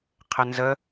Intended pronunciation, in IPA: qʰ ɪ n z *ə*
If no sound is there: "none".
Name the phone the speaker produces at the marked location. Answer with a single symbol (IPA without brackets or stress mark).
ə